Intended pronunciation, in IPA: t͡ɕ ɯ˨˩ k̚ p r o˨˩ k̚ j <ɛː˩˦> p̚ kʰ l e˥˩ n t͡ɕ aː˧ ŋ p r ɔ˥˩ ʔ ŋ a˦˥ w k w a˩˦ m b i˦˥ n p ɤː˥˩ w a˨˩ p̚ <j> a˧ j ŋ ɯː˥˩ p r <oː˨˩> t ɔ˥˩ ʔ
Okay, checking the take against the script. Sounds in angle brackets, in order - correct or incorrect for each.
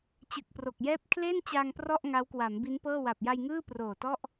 incorrect, correct, correct

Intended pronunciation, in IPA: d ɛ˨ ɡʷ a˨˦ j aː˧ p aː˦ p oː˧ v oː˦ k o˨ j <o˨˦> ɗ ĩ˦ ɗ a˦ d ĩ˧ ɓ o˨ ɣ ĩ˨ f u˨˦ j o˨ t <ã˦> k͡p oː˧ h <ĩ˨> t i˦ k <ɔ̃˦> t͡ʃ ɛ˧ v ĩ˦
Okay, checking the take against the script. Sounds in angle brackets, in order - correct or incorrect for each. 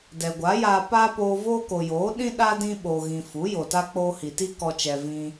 incorrect, incorrect, incorrect, incorrect

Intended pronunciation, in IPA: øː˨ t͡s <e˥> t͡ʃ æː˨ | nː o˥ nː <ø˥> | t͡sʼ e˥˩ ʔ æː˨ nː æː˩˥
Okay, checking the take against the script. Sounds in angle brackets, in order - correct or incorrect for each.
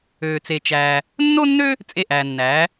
incorrect, correct

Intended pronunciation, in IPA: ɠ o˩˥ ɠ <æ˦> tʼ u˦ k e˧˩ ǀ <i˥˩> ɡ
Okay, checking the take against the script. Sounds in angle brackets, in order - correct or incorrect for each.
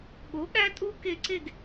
correct, incorrect

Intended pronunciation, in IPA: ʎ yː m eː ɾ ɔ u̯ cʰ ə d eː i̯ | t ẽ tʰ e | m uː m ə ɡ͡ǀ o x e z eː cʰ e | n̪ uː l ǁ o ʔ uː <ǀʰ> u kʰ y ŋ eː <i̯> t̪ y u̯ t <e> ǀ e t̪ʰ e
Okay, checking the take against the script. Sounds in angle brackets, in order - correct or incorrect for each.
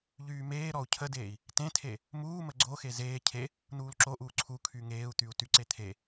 correct, incorrect, incorrect

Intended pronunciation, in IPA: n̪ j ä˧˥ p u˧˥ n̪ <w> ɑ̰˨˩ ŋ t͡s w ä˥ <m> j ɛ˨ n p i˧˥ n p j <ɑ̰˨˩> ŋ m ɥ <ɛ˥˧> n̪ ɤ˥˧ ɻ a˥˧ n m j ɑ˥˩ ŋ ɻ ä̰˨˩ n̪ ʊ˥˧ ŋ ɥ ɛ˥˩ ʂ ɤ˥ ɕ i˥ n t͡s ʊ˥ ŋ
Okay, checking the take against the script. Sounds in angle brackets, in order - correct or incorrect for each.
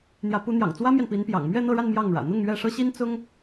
incorrect, correct, correct, correct

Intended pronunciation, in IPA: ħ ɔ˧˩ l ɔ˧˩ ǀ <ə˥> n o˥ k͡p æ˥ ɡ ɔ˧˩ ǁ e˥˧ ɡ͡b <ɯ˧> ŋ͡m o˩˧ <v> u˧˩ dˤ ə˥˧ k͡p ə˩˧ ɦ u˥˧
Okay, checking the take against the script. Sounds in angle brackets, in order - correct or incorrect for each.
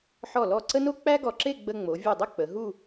correct, incorrect, incorrect

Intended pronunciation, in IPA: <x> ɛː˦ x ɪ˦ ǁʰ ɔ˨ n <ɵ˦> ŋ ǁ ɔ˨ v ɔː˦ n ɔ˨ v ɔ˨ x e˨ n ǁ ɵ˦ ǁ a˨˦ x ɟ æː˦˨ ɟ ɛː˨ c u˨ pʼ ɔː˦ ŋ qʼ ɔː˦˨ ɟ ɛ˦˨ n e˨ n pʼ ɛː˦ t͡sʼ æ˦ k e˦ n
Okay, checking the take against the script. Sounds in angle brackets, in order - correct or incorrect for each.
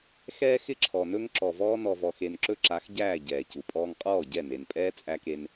correct, correct

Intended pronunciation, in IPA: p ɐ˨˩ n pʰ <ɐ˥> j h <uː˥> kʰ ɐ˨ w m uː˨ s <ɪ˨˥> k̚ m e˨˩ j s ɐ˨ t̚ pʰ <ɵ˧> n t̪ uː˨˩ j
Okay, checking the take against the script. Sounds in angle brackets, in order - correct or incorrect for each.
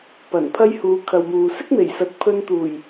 correct, incorrect, incorrect, correct

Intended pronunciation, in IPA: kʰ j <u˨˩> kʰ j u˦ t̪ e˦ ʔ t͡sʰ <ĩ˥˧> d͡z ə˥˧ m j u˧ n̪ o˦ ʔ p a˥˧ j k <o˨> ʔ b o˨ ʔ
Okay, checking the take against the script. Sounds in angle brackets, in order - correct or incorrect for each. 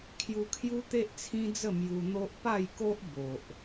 incorrect, incorrect, incorrect

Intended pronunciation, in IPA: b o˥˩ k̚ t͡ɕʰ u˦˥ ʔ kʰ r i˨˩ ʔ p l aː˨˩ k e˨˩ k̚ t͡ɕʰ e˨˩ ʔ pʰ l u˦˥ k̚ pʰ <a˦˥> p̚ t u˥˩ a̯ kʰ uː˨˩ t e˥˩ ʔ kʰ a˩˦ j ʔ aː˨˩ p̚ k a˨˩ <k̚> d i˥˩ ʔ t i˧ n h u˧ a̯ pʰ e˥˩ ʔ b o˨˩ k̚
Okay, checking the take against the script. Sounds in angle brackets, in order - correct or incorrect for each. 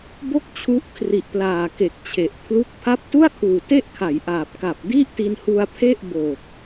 correct, incorrect

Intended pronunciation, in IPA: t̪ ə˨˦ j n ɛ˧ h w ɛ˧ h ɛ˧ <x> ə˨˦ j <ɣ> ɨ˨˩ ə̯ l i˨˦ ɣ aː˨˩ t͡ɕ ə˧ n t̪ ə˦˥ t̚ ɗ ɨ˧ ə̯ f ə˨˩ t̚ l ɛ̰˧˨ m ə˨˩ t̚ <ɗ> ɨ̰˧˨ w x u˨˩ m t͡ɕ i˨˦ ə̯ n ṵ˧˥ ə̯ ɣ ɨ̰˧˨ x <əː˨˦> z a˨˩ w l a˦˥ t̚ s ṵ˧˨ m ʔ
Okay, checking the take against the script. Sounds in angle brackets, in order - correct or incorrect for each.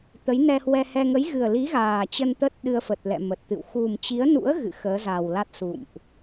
incorrect, correct, incorrect, correct

